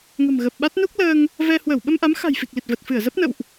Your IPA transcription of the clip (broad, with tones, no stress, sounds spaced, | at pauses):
ŋ ə̤˨˩ m ɣ ə˨˩ p̚ ɓ a˦˥ t̚ n u˦˥ k̚ l əː˧ ŋ | v ɛ˧ h w əː˧˩ w ɓ ə˧ m ʔ a˨˦ m x a̤˨˩ j f i˨˩ k̚ l i˨˩ t̚ v ə˨˩ t̚ f ɨ˧˩ ə̯ z ə˦˥ p̚ n ə̰˧˨ w ʔ